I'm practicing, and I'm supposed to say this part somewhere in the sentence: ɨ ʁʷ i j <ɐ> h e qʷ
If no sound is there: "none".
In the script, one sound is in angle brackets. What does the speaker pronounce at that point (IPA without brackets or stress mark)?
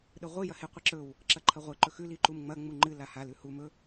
ɐ